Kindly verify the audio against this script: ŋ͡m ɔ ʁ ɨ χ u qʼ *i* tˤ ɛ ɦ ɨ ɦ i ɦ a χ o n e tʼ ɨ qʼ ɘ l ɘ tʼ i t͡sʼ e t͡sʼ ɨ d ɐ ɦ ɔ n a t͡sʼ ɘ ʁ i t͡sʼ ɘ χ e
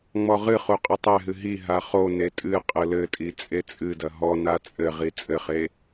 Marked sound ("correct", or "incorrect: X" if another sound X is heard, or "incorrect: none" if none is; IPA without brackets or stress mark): incorrect: ɨ